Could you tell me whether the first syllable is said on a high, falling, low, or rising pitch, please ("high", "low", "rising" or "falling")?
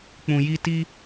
low